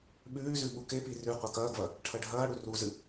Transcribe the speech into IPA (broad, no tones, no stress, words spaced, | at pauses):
ɓʉːzʉ ɓukepi rʉ qʷakɐːɡvɐ | ʈʰɐɖʱɐːɽu ruzɨ